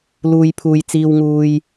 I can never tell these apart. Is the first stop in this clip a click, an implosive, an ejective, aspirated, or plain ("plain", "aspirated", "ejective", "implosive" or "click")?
aspirated